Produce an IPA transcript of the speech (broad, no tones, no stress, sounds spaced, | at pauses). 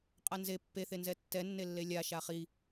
qʼ a n z e pː e θ e n z ɛ tː ɛ nː e lː e lʲ a ʃ a χ i